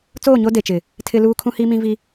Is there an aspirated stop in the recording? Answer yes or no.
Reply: yes